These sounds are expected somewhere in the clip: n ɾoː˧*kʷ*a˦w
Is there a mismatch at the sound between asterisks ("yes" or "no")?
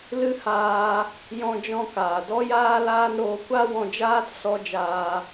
no